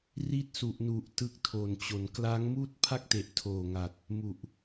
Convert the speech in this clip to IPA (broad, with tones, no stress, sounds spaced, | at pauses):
r i˦˥ t̚ s u˨˩ ʔ n u˨˩ ʔ t ɯ˦˥ k̚ tʰ o˨˩ n t͡ɕ o˩˦ n k l a˦˥ ŋ m uː˥˩ t̚ pʰ a˥˩ k̚ t e˨˩ ʔ tʰ oː˨˩ ŋ a˨˩ t̚ | m u˨˩ ʔ